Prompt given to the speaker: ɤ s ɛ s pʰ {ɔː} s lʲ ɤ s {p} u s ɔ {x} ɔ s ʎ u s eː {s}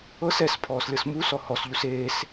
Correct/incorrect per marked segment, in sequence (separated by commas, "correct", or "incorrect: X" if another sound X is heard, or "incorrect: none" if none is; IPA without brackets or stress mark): correct, incorrect: m, incorrect: h, correct